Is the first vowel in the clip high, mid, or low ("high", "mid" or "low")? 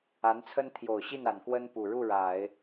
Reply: low